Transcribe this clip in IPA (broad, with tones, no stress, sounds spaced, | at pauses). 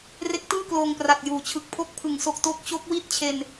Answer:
r e˦˥ k̚ t ɯː˥˩ k l oː˧ ŋ p r a˨˩ t̚ j uː˩˦ t͡ɕʰ ɯ˨˩ k̚ pʰ o˦˥ k̚ pʰ ɯ˩˦ ŋ s o˨˩ k̚ t o˦˥ k̚ t͡ɕ o˦˥ k̚ w i˥˩ t̚ t͡ɕʰ e˧ n